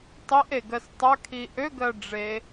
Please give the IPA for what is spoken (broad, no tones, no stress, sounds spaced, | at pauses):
tˤ i ʔ e ɡ ɜ s tˤ ɐ kʰ i ʔ ø ɡ ɜ ɖ͡ʐ e